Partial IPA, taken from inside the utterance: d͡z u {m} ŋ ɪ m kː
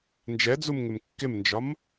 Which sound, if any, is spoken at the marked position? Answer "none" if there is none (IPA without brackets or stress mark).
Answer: m